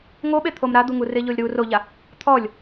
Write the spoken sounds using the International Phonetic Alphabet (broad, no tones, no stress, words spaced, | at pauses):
ŋoɓet̪ʰom ɾad̪uŋu rɪʎolʲɾu roʎa | t̪ʰɔlʲ